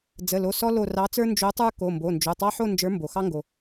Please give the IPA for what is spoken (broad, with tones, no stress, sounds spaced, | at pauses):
d͡z ə˩˧˩ l o˩˧˩ s ɔ˦ l o˧˩ r ɑ˨˥ t͡s ə˞˦ n d͡ʒ o˨˥ tˤ ə˞˦ k o˩˧˩ m b o˩˧˩ n d͡ʒ o˩˧˩ tˤ ɑ˦ ħ o˥˨ n d͡ʒ ə˞˨˥ m b o˩ x ɑ˦ ŋ ɡ o˩